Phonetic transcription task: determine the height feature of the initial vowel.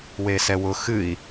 mid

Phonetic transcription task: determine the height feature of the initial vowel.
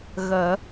mid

